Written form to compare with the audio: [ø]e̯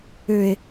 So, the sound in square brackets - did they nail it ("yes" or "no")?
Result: yes